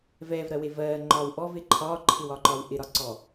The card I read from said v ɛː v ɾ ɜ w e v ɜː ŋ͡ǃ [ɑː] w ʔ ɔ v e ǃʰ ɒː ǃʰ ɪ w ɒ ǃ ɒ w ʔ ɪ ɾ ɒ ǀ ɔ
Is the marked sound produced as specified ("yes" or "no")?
no